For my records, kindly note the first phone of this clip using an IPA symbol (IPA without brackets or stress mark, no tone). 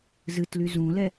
z